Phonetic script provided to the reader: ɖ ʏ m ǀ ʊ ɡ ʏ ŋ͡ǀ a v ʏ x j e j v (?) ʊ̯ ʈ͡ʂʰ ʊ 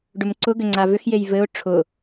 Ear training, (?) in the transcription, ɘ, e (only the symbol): ɘ